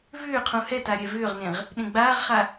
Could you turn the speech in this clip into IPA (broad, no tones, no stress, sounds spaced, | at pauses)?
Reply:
v ʏː qʰ ũ h ɛ t a ɾʲ ɛ v ʏː ʁ n ẽ ʁ | ɗ ẽ ɡ͡b aː ʁ χ a